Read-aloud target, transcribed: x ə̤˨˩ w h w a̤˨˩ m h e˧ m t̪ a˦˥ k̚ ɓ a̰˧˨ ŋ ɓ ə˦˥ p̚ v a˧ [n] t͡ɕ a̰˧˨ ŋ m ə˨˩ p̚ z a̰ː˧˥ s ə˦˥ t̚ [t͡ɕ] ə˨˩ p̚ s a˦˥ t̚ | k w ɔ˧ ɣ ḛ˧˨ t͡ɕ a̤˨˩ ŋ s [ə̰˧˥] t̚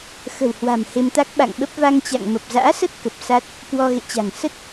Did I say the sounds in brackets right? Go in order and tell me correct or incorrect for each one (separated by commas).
incorrect, incorrect, incorrect